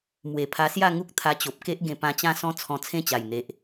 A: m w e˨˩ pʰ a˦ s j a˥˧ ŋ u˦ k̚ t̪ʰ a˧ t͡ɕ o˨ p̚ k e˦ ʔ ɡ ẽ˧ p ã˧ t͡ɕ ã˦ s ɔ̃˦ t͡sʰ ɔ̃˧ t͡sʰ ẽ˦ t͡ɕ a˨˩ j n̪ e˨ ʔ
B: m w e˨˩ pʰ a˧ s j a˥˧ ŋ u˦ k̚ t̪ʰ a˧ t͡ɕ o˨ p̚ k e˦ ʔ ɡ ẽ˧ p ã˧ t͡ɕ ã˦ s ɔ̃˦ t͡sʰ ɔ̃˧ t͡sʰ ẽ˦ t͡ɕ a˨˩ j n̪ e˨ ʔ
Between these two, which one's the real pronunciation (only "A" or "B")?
B